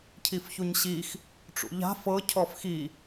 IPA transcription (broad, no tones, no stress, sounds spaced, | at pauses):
cʰ i f ç u ɲ ɕ i x | ʈ͡ʂ ṵ ʎ a̤ f ɤ cʰ ɔ f x i